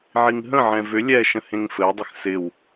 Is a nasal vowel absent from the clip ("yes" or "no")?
no